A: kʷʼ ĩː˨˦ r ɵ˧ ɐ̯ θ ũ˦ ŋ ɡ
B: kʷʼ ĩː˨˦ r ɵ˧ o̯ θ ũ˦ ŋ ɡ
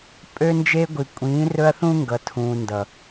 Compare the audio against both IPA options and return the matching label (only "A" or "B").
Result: A